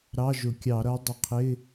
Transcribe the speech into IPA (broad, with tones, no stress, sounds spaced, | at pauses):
ɾ ɑ˧˥˧ ʒ ʊ˧˩˧ kʲ ɑ˧˩˧ ɾ ʌ˧˥ dˤ ɪ˧˩ qʰ ɪ˧˥˧